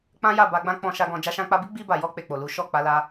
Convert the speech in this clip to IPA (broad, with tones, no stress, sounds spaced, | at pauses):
k͡p ã˦ j a˦˨ b a˧ ɡ͡b ã˦ k͡p ɔ̃˧ ʃ a˧ ɡ ɔ̃˧ d͡ʒ a˧ ʃ ã˧ k͡p a˧ b i˦ ɡ͡b i˧ b a˨ j ɔ˧ k͡p e˨ k͡p o˨ l u˨˦ ʃ ɔ˦˨ k͡p a˨˦ l a˧